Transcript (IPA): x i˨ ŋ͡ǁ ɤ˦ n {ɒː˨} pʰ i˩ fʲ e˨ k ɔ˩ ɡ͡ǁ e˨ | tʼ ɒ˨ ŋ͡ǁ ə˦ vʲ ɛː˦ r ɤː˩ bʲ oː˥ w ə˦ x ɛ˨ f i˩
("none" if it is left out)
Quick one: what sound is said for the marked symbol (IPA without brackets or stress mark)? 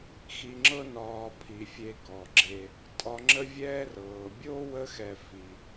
ɒː˨